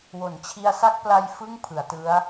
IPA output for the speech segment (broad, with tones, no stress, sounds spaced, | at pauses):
w o˩˦ n t͡ɕʰ i˧ a̯ s a˥˩ k̚ p l a˧ j f ɯ˥˩ ŋ pʰ ɯ˩˦ a̯ t ɯ˦˥ a̯